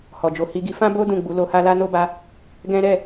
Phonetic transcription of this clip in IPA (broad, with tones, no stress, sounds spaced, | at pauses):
h ɔ˨ d͡ʒ o˨˦ h i˧ ɡ i˧ f ã˦ b o˦ d ũ˦˨ ɡ͡b u˨˦ l o˧ h a˦ l a˦ n o˦ b a˧ | ɡ ɛ̃˦ ɾ ɛ˦˨